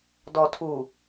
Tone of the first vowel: low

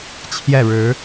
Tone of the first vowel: falling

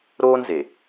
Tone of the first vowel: high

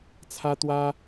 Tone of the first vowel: high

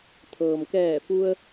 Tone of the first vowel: low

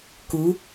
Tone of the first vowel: rising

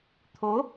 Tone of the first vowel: rising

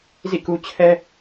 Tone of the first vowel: falling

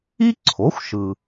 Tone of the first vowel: high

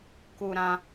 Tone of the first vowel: high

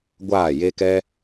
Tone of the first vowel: falling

